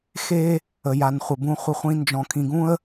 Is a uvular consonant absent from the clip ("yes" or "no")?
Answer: no